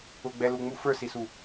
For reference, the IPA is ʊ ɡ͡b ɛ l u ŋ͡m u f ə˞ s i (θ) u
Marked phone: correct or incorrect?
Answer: incorrect